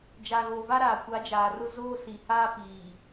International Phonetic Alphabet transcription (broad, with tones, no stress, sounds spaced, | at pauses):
d͡ʒ a˨ ɣ oː˨ v a˦ ɾ aː˨ kʷ a˨˦ d͡ʒ aː˨ r ʊ˦ z oː˦ s i˨ h aː˦ p iː˨